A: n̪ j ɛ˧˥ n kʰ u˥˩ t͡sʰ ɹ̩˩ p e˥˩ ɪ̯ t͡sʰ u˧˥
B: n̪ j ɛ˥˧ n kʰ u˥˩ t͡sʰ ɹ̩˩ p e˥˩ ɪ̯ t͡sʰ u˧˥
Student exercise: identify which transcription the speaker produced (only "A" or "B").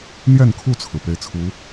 B